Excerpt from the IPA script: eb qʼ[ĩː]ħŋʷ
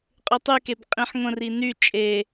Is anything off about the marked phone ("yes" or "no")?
yes